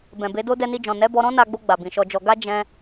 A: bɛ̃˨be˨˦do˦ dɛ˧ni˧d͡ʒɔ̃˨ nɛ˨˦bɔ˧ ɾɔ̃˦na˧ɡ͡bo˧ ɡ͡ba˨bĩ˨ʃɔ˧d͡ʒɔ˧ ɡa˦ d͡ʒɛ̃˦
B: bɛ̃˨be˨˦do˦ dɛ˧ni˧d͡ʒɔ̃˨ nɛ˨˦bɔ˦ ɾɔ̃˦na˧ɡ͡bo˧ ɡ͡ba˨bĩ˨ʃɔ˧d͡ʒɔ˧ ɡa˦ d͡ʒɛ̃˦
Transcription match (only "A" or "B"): A